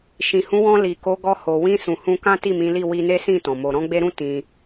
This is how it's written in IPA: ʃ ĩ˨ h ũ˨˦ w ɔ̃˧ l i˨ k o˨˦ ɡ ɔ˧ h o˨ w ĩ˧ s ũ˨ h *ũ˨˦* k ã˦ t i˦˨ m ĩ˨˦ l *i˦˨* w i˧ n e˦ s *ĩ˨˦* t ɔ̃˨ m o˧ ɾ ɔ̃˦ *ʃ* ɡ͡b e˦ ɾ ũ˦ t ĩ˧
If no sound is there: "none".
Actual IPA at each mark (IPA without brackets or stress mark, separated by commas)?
ũ˧, i˦˨, ĩ˦˨, none